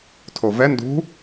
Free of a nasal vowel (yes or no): yes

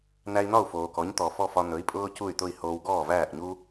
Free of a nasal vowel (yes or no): yes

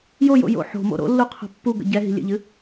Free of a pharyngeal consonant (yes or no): no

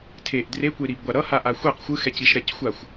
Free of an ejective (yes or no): yes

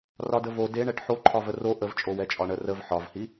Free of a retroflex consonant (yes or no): no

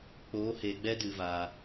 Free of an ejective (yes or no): yes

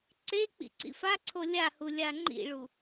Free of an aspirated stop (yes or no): no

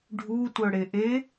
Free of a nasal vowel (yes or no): yes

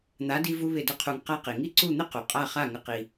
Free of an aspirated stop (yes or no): no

